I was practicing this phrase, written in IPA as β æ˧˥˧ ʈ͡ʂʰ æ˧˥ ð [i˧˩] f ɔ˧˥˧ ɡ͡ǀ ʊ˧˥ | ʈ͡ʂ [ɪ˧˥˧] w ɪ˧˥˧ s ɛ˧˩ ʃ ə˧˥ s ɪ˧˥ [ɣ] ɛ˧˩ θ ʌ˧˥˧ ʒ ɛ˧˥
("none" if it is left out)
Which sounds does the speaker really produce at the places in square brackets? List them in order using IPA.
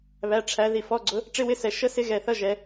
i˧˩, ɪ˧˥˧, ɣ

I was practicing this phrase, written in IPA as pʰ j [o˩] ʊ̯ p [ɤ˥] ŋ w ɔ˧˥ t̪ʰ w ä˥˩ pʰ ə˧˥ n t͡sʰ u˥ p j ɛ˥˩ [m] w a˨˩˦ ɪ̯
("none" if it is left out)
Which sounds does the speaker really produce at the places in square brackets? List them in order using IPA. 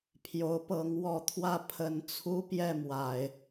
o˧˥, ɤ˧˥, m

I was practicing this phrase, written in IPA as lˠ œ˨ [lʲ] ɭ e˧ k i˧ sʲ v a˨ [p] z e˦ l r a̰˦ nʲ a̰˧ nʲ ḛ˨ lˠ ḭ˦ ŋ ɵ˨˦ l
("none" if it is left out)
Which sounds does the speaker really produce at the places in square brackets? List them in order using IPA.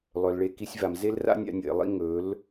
l, m

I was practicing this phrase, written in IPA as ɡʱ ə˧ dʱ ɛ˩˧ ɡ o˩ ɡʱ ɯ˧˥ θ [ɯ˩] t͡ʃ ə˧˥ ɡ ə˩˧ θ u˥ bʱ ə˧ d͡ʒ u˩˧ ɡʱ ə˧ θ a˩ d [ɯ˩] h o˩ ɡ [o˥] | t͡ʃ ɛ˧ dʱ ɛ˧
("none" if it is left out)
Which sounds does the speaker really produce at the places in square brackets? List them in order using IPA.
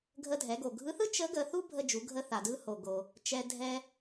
ɯ˥, ɯ˧, o˩

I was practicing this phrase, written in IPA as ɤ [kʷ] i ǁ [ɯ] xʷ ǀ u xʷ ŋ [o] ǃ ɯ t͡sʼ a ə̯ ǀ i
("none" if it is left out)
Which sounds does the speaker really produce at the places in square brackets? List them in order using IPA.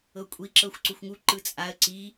kʷʼ, ɤ, u

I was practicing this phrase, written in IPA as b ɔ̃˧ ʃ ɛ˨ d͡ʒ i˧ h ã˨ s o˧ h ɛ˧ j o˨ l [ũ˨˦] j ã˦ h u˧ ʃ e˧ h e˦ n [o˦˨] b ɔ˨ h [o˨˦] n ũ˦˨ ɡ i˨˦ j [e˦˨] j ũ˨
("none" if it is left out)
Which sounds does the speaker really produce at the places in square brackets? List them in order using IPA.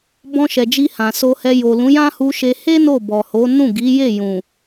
ũ˨˦, o˦˨, o˨˦, e˦˨

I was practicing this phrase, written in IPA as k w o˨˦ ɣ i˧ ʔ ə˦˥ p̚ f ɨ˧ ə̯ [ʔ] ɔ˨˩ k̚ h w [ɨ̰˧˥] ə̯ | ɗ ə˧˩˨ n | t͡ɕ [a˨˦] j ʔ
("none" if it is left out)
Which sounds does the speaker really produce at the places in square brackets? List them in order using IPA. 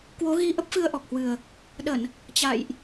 ʔ, ɨ˨˩, a̰˧˨

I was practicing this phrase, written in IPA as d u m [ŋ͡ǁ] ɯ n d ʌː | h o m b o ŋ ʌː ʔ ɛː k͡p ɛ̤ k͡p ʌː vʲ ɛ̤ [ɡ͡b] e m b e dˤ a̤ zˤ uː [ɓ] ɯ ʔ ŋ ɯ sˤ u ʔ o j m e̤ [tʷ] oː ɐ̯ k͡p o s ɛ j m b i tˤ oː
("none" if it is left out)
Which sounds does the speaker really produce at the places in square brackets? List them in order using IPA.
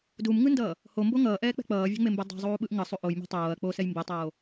ŋ, ŋ͡m, ɓ, tˤ

